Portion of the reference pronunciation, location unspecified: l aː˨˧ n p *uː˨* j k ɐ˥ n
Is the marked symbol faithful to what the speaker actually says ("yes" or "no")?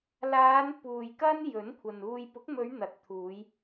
yes